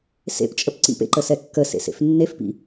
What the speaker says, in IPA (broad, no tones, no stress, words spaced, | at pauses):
sḛpt͡ʃʼəp ǀḭpḛǃəsɛ kːəsḛsḛf nːefpḭ